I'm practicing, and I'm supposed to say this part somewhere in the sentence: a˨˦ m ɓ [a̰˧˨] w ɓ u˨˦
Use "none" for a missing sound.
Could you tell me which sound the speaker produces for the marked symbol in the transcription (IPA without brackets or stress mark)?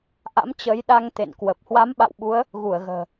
a̰˧˨